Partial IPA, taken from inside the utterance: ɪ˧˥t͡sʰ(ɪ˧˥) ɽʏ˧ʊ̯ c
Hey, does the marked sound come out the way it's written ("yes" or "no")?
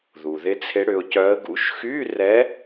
yes